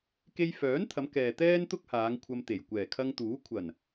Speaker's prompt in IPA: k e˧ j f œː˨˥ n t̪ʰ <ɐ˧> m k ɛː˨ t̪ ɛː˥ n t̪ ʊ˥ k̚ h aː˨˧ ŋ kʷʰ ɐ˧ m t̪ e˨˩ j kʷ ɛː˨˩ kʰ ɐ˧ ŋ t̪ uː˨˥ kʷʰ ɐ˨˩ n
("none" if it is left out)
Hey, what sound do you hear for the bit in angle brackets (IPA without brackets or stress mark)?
ɐ˨˧